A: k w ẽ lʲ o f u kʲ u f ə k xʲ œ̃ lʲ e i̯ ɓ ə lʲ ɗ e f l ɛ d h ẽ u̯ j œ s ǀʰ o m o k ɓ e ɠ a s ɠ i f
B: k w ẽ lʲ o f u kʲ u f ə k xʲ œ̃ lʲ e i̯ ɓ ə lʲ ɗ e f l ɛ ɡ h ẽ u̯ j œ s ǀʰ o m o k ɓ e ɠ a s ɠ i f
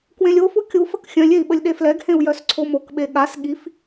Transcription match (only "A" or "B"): B